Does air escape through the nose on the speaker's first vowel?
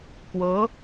no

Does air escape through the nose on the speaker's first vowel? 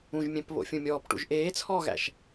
yes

